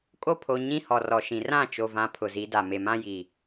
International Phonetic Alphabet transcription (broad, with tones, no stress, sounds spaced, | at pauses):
kʼ o˦ pʰ o˨ ɲ ĩ˦ h ɔ˨ r ɔ˨ ʃ ĩ˨ r ã˦˨ t͡ʃ o˨ v ã˨ pʰ ʊ˨ z i˨˦ d a˨ m e˨ m ã˦ j i˨